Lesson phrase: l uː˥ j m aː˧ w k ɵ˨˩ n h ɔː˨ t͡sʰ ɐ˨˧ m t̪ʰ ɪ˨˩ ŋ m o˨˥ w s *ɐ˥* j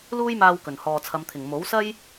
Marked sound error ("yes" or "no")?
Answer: no